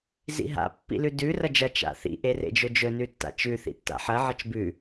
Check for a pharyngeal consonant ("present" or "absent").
present